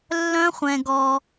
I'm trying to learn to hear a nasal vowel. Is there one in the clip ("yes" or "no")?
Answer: yes